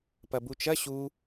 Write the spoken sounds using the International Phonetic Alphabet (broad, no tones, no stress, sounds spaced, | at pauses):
p ɐ b u t͡ʃ ɐ ɕ u